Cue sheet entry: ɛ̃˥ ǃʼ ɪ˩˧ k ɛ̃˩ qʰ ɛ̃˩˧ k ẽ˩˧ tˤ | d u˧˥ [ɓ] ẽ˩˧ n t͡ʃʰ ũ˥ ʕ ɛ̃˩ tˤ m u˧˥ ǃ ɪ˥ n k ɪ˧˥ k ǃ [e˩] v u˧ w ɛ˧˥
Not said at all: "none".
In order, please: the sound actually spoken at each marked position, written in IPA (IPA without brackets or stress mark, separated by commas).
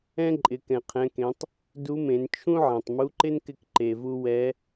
m, e˩